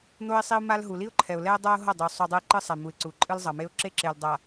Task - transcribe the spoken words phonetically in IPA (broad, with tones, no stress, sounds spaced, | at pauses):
n̪ o˦ ɪ̯ sˤ i˦ ʊ̯ m a˦ l ɦ u˨ l i˦ ʊ̯ ǃʰ ɛ˨ ʊ̯ l ɛ˦ ʊ̯ dˤ a˦ ʊ̯ ɦ ʌ˦˨ dˤ u˨ sˤ o˦ dˤ ɯ˦ ɪ̯ ǃ ɯ˦ sˤ ɛ˨ m u˨ ɪ̯ ǀ u˨ ǃʼ ɯ˦ l zˤ ʌ˨ m e˦ ʊ̯ ǁ e˦ ǁ e˨ l dˤ a˨